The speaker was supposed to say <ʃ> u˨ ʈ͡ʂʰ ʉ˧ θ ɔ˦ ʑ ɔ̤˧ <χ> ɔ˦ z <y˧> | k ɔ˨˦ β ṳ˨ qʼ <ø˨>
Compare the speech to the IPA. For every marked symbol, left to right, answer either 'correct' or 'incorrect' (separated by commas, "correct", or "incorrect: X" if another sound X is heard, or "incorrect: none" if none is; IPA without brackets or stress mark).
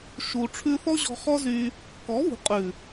correct, correct, correct, incorrect: ʉ˨